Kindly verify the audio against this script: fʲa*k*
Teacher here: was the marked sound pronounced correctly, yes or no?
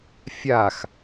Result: no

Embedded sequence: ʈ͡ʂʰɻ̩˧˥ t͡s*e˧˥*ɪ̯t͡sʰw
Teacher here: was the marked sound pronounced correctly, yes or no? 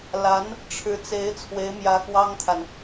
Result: yes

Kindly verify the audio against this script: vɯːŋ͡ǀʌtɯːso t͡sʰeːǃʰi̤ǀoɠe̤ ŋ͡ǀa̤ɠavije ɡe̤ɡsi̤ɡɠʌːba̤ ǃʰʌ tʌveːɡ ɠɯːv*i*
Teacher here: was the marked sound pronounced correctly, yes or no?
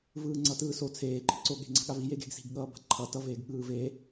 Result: no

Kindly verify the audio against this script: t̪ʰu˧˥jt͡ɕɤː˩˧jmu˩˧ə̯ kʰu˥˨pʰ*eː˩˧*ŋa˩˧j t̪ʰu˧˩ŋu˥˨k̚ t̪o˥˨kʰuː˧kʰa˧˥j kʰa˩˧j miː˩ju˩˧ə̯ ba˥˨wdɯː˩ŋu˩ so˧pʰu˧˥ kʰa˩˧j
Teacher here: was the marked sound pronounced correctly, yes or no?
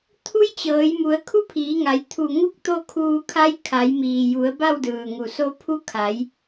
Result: no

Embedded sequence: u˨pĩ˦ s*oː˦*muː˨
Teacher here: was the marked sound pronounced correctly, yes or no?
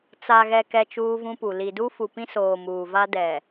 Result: no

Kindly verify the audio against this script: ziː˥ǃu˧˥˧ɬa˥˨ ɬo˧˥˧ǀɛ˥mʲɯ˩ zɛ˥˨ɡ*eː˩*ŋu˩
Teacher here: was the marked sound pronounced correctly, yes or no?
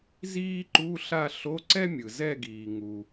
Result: no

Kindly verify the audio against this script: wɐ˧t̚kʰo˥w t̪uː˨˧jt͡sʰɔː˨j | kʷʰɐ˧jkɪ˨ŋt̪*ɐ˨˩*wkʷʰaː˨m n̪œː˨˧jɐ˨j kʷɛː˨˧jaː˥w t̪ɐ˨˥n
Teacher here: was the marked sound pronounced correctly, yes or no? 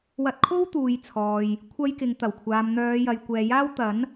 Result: yes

